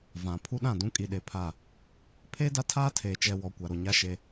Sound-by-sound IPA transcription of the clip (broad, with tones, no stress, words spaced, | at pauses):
vã˨ pʰu˦ɗã˦˨ dũ˦kʼi˨ɗe˨pʰa˦˨ | pʰeː˦da˦tʰaː˦ tʰeː˨t͡ʃɛ˨wɔ˨ kʷa˨ɾo˨ɲa˦ʃe˦